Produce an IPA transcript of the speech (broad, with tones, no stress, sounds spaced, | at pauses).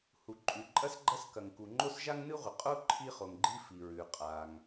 h u˩ ǃʼ ʉ˩ ǃʼ ɐ˥ s ɡ͡ǃ ɐ˥ s k ɐ˩ ŋ k u˩ ŋ͡ǃ o˥ s ʒ a˥ ŋ n ɨ˥ ʁʷ ɨ˩ qʼ o˥ ǃʰ i˥ χ o˩ ŋ ɡ͡ǃ i˥ f i˩ ɹ ʉ˩ qʼ a˩ ŋ